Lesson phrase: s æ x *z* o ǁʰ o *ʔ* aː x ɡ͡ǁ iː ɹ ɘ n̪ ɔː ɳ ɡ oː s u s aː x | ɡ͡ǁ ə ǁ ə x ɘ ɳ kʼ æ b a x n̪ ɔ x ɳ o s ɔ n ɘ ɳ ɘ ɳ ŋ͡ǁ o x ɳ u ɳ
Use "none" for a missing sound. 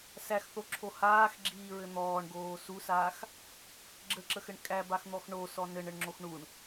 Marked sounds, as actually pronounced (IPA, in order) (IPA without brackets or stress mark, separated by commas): θ, h